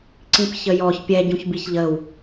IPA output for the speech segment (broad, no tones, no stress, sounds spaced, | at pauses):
ǀ ĩ p ç ə j ɔ ç pʲ ɛ ɟ ũ ç b i ç ʎ ə w